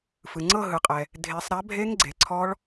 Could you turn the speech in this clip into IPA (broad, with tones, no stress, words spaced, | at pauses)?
fɯ˩ŋ͡ǀɤ˥˧ ɦɯ˩qʼɛ˩ | dʱe˨˩˦sˤɾa˨˥bʱe˦˥ŋ ɡ͡ǀe˩ǀʰɔ˦˥ɭ